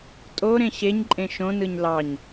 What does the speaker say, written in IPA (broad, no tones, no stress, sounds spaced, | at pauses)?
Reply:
tʼ o ɾ ẽ ɕ e ɲ ǃʼ ẽ ʃ õ n ɯ ɲ l ɑ ɲ